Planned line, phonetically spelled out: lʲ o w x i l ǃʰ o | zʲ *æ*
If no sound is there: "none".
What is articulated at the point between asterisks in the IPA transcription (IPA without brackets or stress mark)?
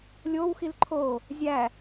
æ